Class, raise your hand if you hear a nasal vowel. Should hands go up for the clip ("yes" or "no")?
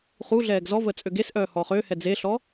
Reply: no